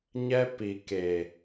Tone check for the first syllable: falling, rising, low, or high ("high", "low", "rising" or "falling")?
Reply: high